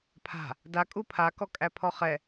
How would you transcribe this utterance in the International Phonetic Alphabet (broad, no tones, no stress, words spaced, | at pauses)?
pʰa̤ | da kʼupʰa kɔkʼæpʰɔχɛ